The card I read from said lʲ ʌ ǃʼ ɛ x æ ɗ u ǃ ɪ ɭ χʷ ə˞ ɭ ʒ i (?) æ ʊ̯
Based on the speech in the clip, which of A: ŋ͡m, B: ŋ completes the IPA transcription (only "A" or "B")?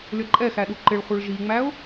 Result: A